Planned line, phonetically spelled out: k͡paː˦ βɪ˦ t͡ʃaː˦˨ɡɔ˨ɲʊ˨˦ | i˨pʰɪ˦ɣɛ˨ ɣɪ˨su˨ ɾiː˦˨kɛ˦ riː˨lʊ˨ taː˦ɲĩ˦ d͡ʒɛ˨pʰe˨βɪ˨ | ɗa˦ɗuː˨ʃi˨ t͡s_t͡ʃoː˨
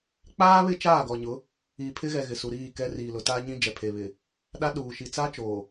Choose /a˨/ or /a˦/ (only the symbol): a˦